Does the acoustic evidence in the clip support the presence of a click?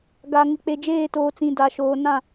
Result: no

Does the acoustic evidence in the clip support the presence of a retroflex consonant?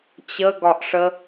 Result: yes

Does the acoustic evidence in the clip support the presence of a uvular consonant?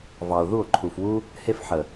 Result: no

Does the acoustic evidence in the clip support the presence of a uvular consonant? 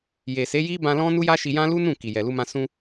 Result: no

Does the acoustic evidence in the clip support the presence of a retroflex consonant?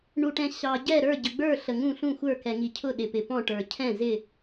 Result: yes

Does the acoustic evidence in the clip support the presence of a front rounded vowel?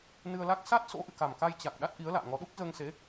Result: no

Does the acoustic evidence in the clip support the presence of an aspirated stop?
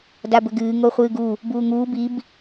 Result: no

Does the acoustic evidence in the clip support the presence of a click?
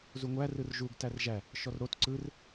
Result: yes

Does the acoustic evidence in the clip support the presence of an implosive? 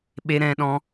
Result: yes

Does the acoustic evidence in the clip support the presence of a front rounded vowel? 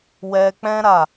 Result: no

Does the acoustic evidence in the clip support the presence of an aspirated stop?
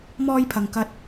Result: yes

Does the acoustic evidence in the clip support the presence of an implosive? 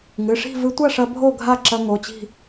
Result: no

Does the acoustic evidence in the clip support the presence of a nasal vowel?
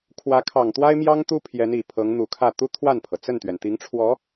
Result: no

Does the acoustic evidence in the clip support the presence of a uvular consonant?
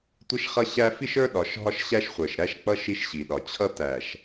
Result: yes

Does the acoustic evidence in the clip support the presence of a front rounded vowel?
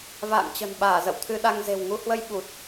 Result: no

